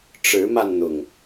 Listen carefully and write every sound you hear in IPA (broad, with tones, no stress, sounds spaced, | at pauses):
ʈ͡ʂ ɻ̩˨˦ m a˧ n n̪ ʊ˨˩ ŋ